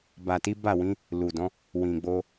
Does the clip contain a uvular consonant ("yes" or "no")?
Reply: no